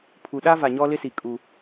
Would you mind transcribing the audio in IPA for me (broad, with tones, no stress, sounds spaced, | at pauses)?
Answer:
pʰ u˨ ɗ a˦ v a˨ ɲ ɔ˦ l ɪ˦ s i˨ kʼ u˦